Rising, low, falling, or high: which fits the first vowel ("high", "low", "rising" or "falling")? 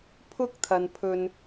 high